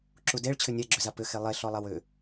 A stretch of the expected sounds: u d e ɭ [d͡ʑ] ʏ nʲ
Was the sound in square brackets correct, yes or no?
no